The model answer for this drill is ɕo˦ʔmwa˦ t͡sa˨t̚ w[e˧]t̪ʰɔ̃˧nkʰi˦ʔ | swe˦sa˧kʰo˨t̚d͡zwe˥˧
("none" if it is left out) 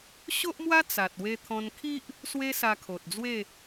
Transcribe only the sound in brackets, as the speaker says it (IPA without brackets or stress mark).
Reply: e˧